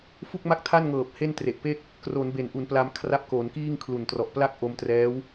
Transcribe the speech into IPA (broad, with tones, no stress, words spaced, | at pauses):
fu˥˩k̚ma˥˩k̚tʰa˥˩nŋɤː˨˩p̚ he˥˩ntre˨˩ʔ pe˥˩k̚ | kro˩˦nbe˩˦nʔu˩˦n pla˧mkʰra˦˥p̚ko˩˦nkiː˥˩ŋ kʰlu˨˩ntrɔ˨˩ʔ pla˥˩k̚ʔo˧mtrɛː˦˥w